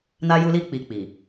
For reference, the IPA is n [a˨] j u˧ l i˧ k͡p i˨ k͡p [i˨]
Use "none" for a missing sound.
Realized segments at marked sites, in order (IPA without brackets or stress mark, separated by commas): a˧, i˨